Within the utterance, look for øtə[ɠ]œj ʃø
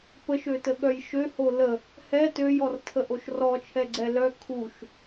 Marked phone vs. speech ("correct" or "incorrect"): correct